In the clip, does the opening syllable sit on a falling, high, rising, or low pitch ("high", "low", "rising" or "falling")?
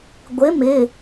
rising